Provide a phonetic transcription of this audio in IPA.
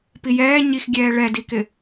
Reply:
p i j ɛː ɲ i x ɡʲ ɛː ɭ ɛ d i k ɪ

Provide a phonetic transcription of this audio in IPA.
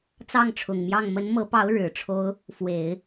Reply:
t͡s ɑ˥˩ ŋ ʈ͡ʂʰ ʊ˨˩ ŋ m j ɑ˥˩ ŋ m ə˧˥ n m ɤ˧˥ p ɑ˧˥ ʊ̯ ɻ ɻ̩˨˩ ʈ͡ʂʰ o˥ ʊ̯ | f w e˨˩˦ ɪ̯

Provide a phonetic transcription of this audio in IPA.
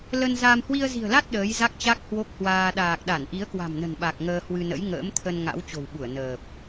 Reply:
l ə˧ n z a˧ m h w i˧ ə̯ z i̤˨˩ ə̯ l a˦˥ t̚ ɗ əː˨˦ j z a˦˥ k̚ t͡ɕ a˦˥ k̚ h w o˦˥ k̚ h w aː˧ ɗ aː˨˩ k̚ ɗ a˧˩ n ʔ i˨˦ ə̯ k w a̤˨˩ m n ə̤˨˩ n ɓ a˨˩ k̚ ŋ əː˧ h w ɨ˧ n ə̰˧˥ j ŋ ə̰ː˧˥ m t̪ʰ ə˧ n ŋ a̰˧˥ w t͡ɕ o̤˨˩ w ɓ u˧˩ ə̯ n əː˨˩ p̚

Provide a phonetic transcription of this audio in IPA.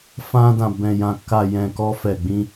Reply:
f ã˧ d ã˨ b ɛ̃˨ j ã˨ k a˨ j ɛ̃˨ k ɔ˧ f ɛ˨ ɡ͡b ĩ˧

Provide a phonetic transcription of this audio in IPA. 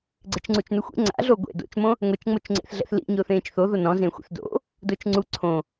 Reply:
ɡ͡ǀ ɪ t͡ʃ ŋ͡ǀ u t͡ʃ n ʊ xʷ ḛ ŋ͡ǀ a̰ ɮ o ɡʷ ḛ d o̰ t͡ʃ m õ | ŋʷ e t͡ʃ ŋ͡m o t͡ʃ ŋ͡ǀ ḛ θ ɮ ɛ̰ θ l ḭ ɲ ʊː θ ẽː t͡ʃ θ o ð o n ɔ̃ z ẽ xʷ ɛ̰ θ d o̰ | d ʊː t͡ʃ ŋ͡ǀ u ǀʰ õ

